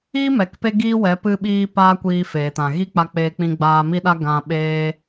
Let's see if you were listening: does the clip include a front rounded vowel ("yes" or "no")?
no